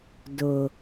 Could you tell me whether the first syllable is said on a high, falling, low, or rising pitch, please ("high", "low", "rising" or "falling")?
low